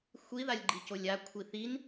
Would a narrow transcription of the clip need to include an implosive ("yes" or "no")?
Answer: no